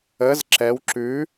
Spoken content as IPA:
ə z ǁ ɛ w ǁ ʉ

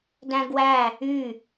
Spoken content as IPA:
d æ̃ ɡ w æ | y

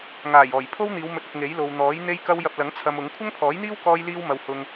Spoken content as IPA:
ŋ aː˨˩ j ɔː˨˩ j pʰ o˥ w n̪ iː˨˧ w m ɵ˨˥ t̚ ɪ˨ k̚ ŋ e˨˥ j l o˨ w n̪ ɔː˨˥ j n̪ e˥ j k ɐ˥ w j ɐ˧ p̚ l ɐ˨˥ ŋ t͡sʰ ɐ˧ m ʊ˨˥ ŋ kʷʰ ɐ˥ ŋ pʰ ɔː˨˥ j n̪ iː˥ w k ɔː˥ j l iː˥ w m ɐ˧ w h ʊ˧ ŋ

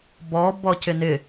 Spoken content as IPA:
b ɔ b ɔ c ɪ n ɪ

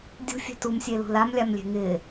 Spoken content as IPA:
dʲ ṳ fʲ ɛ̤ t u m sʲ e l ṳ l a m lʲ a m lʲ e̤ ŋ ɪ

